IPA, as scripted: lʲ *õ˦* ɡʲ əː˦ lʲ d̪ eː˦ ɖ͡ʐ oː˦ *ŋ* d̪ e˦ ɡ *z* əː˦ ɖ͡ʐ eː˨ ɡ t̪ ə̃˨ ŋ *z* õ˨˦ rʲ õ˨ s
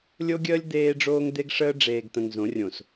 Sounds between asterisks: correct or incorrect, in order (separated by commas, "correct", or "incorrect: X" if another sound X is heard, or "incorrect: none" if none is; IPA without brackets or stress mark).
incorrect: o˦, correct, incorrect: ʂ, correct